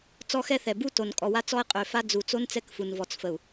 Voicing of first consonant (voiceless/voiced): voiceless